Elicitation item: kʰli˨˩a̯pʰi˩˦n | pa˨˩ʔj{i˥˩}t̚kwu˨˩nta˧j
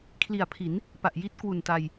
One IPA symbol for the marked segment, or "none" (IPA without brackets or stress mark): i˥˩